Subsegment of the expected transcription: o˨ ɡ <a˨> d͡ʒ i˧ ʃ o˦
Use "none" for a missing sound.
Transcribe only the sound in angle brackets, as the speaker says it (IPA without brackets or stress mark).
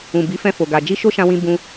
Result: a˨